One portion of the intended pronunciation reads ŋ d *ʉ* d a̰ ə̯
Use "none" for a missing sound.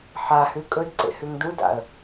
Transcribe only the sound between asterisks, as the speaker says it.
u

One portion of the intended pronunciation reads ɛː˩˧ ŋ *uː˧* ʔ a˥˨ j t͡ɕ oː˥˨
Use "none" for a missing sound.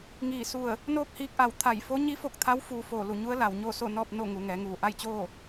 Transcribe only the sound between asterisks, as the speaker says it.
uː˧˩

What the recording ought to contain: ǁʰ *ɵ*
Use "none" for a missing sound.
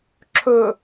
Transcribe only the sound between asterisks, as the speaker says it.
ɵ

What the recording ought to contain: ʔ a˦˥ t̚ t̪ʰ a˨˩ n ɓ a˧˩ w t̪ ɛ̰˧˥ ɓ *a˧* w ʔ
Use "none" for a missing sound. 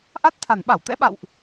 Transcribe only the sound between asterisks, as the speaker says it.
a̰˧˨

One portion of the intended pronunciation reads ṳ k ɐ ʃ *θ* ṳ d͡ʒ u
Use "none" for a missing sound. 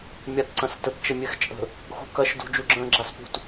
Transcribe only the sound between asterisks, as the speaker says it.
d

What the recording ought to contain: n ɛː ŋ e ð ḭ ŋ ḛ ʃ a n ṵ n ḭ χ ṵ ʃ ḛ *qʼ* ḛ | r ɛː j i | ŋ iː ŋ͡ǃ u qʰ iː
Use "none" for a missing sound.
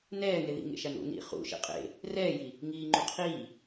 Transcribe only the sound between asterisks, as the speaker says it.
qʼ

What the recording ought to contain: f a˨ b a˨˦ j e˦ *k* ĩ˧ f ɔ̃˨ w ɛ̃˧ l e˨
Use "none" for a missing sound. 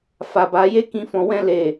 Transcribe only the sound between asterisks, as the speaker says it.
k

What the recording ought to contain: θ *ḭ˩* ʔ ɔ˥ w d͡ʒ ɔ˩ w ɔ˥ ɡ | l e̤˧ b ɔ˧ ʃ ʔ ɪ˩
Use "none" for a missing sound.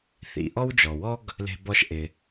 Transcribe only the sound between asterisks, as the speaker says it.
ḭ˩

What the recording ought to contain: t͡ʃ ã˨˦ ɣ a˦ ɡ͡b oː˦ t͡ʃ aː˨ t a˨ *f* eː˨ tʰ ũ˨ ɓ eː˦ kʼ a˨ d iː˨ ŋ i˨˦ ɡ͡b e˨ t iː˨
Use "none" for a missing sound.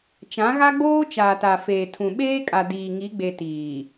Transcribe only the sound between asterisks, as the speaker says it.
f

